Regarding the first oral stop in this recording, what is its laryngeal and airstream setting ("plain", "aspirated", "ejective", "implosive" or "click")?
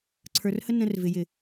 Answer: click